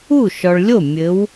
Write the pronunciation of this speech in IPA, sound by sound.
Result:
u˥˩ ʃ ɔ˨ ɭ lʲ o˥˩ mʲ ɘ˨˦ w

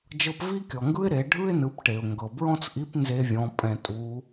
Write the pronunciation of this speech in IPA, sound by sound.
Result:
d͡ʒ ɤ˧ p v i˥ kʲ ɔ˩ ŋ ɡ ɯ˥ ɪ̯ ɾ e˩˧ ɖʱ ɯ˥ ɪ̯ n ɯ˩˧ p ʈ e˩ ʊ̯ ŋ ɡ ɤ˩ b ɹ ɔ̃˥ t͡s ʔ i˧˥ p n z e˥ vʲ ɔ̃˧˥ pʼ ɛ̃˧ tʼ u˧˥

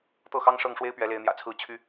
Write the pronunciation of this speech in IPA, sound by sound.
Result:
t̪ ɤ˥˩ x ɑ˥ ŋ ʂ ɤ˥˩ ŋ ʂ w e˥ ɪ̯ p ɥ ɛ˧˥ l e˧˥ ɪ̯ n̪ j ä̰˨˩ t͡sʰ ɹ̩˥˩ t͡ɕʰ y˥

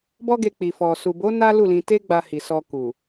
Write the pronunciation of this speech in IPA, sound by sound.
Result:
b ɔ˦ ɡ e˧ k͡p i˨ f ɔ˨ s u˨ b o˨˦ n a˦ l u˦˨ l ĩ˧ t e˦ ɡ͡b a˧ h i˨ s ɔ˧ k u˨

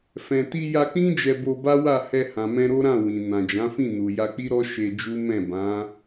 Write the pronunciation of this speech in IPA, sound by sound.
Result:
f ɛ̃˨ t i˧ j a˧ k͡p ĩ˦ d͡ʒ ɛ˧ b o˧ b a˦ w a˦˨ h ɛ˧ h ã˨ m ɛ̃˧ ɾ o˦ ɾ ã˦˨ w ĩ˨ n ã˨ d͡ʒ ã˨˦ f ĩ˦˨ n u˨ j a˧ k͡p i˦ ɾ ɔ˦ ʃ e˧ d͡ʒ u˦ m ɛ̃˦˨ b ã˨˦

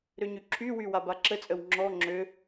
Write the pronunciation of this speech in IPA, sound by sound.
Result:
ɾ ø ɲ y ǁʰ y w y w a b a ǁ ə t͡sʼ ə w ŋ͡ǁ ɔ ŋ͡ǁ ø

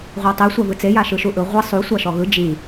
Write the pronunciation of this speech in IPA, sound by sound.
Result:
ʁʷ a tˤ e sʷ a v ɯ t͡s e j a ʃ ɯ ʃ u ʔ ɯ ʁʷ e sˤ u sʷ a ʃ ɔ ɣ ɯ d͡ʒ i

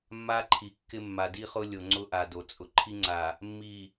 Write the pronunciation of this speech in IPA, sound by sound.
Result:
mː a˦ ǃʰ i˨ kː ɪ˦ mː a˨ d i˦ χ ʊ˦ lʲ o˨ ŋ͡ǀ ʊ˦ ʔ a˨ d o˨ t͡sʼ ʊ˨ ǃʰ i˦ ŋ͡ǀ a˨ | mː i˨

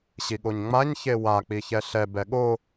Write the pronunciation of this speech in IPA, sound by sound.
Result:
ɕ i ɠ o ɲ ŋ͡m a ɲ ç e w a k͡p i ç ɛ ɬ ɛ b ɛ ɠ o

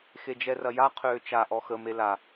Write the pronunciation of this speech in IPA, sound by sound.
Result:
x e d͡ʒ ɛ r ɐ j a qʰ øː t͡ʃ a ʔ ɔ x ə m e l a

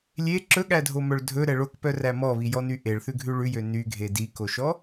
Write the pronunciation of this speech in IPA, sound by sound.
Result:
lʲ e ǁ ɵ ɠ æ dʱ o m œ ɭ dʱ ɵ ɾ ɛ ɭ o k p œ r æ m ɔ β i j ɔ n y ʔ e ɭ θ ʉ ɡʱ ʉ ɭ ʉ j ø n y ɡʱ e d i k o ʃ ɔ

